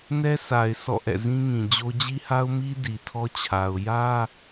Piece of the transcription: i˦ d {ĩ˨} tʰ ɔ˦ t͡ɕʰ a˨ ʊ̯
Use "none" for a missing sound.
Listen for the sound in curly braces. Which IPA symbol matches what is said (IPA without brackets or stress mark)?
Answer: i˨